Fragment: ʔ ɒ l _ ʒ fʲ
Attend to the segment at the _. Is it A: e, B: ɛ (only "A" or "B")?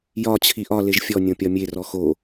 A